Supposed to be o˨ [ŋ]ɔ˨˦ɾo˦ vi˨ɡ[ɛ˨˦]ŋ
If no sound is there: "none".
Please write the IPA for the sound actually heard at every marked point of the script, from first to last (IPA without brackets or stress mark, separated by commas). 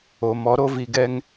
m, ɛ˦